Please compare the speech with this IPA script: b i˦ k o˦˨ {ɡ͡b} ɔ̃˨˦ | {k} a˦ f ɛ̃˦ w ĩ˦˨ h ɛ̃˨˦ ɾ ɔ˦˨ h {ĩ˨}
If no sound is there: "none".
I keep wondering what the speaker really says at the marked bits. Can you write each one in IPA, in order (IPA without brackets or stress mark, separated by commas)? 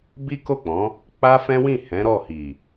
k͡p, k͡p, i˨